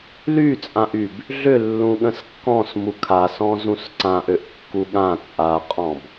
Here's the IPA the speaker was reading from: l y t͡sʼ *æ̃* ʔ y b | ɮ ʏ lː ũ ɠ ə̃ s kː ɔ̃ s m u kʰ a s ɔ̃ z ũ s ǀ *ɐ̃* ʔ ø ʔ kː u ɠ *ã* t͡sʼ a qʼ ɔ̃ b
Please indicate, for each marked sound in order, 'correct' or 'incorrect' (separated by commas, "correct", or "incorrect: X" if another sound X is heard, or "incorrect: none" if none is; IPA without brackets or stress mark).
incorrect: ã, incorrect: ã, correct